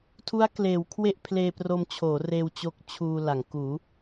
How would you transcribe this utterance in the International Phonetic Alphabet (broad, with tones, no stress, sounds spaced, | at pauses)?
tʰ u˦˥ a̯ k l eː˩˦ w kʰ w e˥˩ ʔ pʰ l eː˧ p r o˧ m t͡ɕʰ oː˩˦ r eː˧ w t͡ɕ o˦˥ k̚ t͡ɕʰ uː˧ l a˩˦ ŋ k uː˩˦